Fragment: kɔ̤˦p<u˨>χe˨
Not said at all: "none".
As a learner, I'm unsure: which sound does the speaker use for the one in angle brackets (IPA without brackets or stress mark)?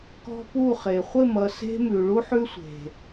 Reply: u˦˨